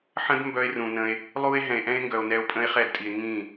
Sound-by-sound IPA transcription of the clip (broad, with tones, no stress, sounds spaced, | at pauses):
ħ ə̃˦ d m b œ˦ e̯ r ũ˨ n ə̃˧ e̯ | lˠ u˦ e̯ ɦ ɛ̃˨ e̯ ʔ ɛ̃˦ e̯ ŋ ɡ œ˨ o̯ n ɛ˧ o̯ pʼ ə̃˦ e̯ χ ɛ˦˨ d tʼ i˨ e̯ ŋ ĩ˦˨